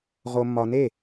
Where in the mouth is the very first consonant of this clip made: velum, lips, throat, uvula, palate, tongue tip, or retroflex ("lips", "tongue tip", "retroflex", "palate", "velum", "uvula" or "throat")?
uvula